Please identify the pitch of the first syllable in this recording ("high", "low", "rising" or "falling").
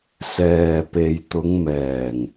low